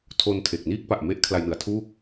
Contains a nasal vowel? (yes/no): no